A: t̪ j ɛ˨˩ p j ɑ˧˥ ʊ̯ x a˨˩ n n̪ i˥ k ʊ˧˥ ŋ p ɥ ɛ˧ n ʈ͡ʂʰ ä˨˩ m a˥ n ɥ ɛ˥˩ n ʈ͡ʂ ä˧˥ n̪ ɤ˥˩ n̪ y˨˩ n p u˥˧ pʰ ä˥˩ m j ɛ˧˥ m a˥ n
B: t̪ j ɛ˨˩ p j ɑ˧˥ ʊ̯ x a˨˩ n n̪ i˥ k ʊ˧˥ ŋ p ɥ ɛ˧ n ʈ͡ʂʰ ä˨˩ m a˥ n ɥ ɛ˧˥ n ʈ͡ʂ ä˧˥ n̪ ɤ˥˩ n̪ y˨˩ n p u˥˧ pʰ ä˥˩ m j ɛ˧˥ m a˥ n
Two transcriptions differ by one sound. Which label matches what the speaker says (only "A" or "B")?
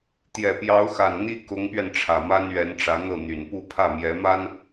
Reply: B